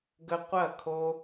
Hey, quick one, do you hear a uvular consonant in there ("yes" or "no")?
yes